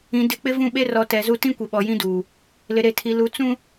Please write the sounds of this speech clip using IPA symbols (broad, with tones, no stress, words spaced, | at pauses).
ĩ˨ dɪ˨˦k͡pɪ˦ vũ˦˨ɓe˦rɔ˨˦ tɛ˨˦zu˦ tĩ˦kʷe˨ɓɔ˨ jĩ˦duː˨ | lɪ˨ɾe˨tʰi˨lu˨˦ t͡sũ˦